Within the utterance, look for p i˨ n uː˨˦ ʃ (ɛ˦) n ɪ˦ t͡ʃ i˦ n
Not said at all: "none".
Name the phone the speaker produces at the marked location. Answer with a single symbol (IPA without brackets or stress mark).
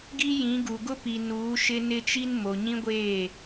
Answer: ɪ˦